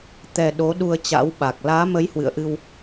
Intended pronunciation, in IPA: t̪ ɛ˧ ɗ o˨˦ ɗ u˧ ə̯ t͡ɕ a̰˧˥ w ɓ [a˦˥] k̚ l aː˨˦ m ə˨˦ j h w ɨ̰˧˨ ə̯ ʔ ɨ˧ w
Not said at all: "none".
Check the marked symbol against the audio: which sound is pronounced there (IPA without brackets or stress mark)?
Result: a˨˩